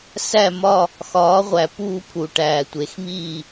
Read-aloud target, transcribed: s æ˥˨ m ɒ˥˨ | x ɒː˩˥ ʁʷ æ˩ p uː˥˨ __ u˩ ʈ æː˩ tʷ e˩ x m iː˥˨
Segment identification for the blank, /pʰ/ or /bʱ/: pʰ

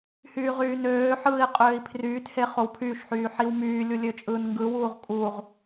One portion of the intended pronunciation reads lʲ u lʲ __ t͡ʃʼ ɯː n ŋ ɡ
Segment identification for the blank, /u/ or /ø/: ø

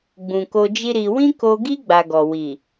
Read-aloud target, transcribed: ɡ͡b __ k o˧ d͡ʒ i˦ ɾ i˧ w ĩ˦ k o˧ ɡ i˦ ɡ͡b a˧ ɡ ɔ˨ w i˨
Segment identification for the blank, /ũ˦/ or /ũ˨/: ũ˨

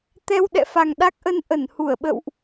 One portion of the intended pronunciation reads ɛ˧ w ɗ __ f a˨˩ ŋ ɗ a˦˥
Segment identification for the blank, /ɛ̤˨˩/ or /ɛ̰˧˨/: ɛ̰˧˨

